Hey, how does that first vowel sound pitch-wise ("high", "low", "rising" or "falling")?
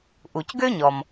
low